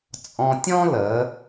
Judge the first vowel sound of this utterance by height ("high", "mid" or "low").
mid